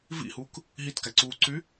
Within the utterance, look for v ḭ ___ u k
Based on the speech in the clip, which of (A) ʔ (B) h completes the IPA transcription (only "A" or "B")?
B